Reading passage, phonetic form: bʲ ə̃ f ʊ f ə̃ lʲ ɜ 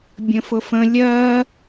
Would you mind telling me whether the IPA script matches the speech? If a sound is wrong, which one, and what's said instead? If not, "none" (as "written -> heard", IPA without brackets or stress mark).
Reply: none